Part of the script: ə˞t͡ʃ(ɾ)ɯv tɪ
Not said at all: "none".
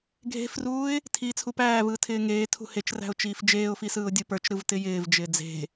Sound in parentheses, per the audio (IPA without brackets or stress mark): ɾ